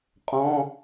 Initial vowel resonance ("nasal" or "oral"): nasal